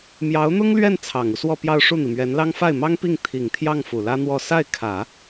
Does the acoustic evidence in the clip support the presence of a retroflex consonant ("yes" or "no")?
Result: yes